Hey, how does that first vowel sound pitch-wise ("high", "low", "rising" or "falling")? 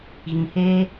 low